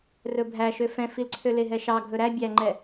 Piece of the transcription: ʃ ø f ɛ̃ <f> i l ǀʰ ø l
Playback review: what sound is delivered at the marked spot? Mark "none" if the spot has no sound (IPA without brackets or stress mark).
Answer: f